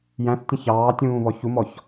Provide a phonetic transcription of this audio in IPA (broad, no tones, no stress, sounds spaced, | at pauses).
j æ̃ θ tʲ ə̃ ç ɑː tʲ ũː β ɔ ç u m ɔ ç